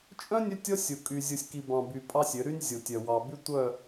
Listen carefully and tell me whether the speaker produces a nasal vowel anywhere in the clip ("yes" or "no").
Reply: yes